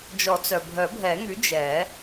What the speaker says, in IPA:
d͡ʒ ɔ˨˩˦ t͡s œ˩ bʱ œ˨˩˦ bʱ ɛ˨˩˦ ŋ y˩˥ d͡ʒ ɛ˨˩˦

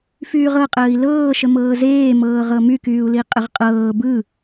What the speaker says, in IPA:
f yː ʁ ɤ qʼ əː i̯ l ɤː ʃ ə m ɤː z eː m ɤː ʁ ɤ m y k yː u̯ l i qʼ ə ʁ qʼ ɤː b ɯ

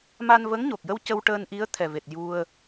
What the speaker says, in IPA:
m a˧ n v ə˧˥ ŋ ɲ o˨˩ k̚ j ə˧ w c ə˧ w ʈ əː˧ n ʔ i˧˥ ə̯ t̪ʰ ɛ˨˩ v e˨˩ t̚ j u˧ ə̯

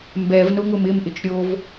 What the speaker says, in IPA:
m b ɛ v n ʊ ŋ ʊ m ɪ m ʔ ɪ t͡ʃ ɾʲ o v

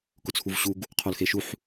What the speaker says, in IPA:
k ʊ t͡sʰ u v ɕ u ɡ | qʰ o l x e ʃ u ħ

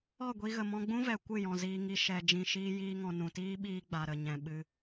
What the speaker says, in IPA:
ɔ˦˨ ɡʷ i˧ ɣ ə˨ m ɔ̃˧ ɡ͡b ũ˦ v ɛ˨ kʷ ɨ˦˨ j ɔ̃˨ z iː˧ ŋ i˧ ʃ ɛ˨ d͡ʒ ĩ˧ ʃ iː˦ j iː˧ ŋ ɔ̃˨ n ũ˨ t iː˦ ɓ iː˧ ɡ͡b a˨ ɾ ə˨ ɲ ɛ̃˨ ɓ ɨ˧

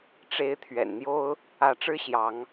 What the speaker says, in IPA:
ʈ͡ʂ e˨˦ ɪ̯ t̪ʰ ɥ ɛ̰˨˩ n n̪ j o˦ ʊ̯ | ä˨˦ ʈ͡ʂ ɻ̩˦ ɕ j ɑ˨˦ ŋ

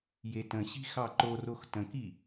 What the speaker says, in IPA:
j e t ə̃ ɕ i̤ x ɑ ǃ o r o x t ə̃ k i

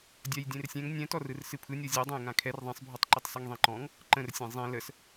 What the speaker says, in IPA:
dʲ a j dʲ ẽ r sʲ ɛ̃ ŋ nʲ ɛ̃ t ɔ r ɯ r s ɨ pʰ ɯ nʲ ɔ zʲ ɛ dˤ ã j ŋ ã kʰ ɛ r ðˤ ẽ sˤ bʱ ɔ tˤ ǃ ɨ tˤ s ɯ ŋ ðˤ ĩ ǃ ɔ̃ ŋ | ǃ ə̃ r sʲ ẽ zˤ ĩ l ə s

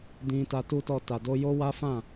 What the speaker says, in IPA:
d ĩ˧ t a˧ t u˦ t ɔ˦˨ t a˨ d o˧ j o˦ w a˦ f ã˦˨

